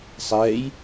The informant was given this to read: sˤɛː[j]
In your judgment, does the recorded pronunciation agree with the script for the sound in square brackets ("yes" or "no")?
yes